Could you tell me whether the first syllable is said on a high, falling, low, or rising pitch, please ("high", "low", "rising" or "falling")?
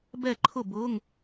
falling